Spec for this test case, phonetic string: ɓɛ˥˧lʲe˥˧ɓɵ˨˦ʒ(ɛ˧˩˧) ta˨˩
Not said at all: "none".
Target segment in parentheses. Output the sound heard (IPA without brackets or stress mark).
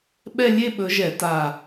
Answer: ɛ˧˩˧